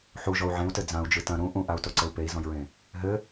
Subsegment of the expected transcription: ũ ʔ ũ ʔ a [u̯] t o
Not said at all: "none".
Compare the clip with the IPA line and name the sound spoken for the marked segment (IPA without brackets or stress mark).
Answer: u̯